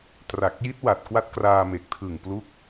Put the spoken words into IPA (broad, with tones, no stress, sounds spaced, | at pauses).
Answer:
t r a˨˩ k̚ j i˦˥ t̚ w a˨˩ t̚ k w a˦˥ t̚ k r aː˧ m e˨˩ k̚ tʰ ɯ˨˩ ŋ p l u˦˥ k̚